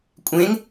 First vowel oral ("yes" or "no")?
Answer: no